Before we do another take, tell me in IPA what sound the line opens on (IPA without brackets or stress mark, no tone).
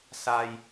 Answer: s